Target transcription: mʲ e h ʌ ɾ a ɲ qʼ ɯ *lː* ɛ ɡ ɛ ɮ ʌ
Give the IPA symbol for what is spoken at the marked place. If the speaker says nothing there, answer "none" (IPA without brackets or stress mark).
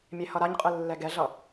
lː